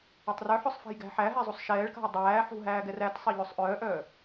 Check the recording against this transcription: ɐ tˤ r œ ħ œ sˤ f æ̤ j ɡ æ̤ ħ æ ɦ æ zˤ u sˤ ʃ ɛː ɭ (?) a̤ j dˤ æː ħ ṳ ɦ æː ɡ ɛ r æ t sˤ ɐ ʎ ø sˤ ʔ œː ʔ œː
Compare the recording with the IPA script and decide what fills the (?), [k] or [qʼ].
k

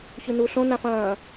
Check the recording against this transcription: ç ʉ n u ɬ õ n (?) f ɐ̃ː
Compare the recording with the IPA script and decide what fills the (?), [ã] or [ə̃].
ã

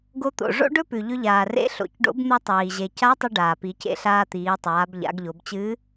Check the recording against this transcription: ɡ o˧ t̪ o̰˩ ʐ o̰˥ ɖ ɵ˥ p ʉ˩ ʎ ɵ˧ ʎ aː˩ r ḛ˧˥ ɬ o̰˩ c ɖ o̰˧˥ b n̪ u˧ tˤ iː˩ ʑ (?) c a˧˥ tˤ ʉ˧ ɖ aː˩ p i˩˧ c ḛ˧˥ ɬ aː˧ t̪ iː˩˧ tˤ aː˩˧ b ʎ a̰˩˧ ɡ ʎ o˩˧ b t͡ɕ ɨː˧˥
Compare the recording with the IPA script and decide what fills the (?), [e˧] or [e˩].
e˩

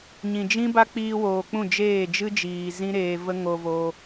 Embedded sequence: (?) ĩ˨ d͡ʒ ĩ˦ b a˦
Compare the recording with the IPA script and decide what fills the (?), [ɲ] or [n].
ɲ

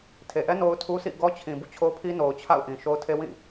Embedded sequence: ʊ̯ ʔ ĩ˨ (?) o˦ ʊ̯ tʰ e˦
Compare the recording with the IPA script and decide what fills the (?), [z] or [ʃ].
ʃ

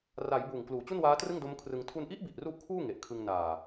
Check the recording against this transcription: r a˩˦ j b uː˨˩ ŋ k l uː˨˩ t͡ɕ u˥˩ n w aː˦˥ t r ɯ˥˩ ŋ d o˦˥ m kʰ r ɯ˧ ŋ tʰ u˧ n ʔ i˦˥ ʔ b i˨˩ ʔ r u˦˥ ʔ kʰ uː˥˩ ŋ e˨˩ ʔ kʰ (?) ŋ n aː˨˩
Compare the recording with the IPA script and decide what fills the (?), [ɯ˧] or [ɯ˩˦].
ɯ˧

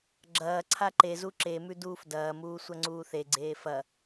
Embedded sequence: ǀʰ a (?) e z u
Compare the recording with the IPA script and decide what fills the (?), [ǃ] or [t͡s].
ǃ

